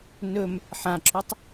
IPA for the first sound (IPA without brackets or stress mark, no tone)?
n